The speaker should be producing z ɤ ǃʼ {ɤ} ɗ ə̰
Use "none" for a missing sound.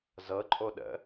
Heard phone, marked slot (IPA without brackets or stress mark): o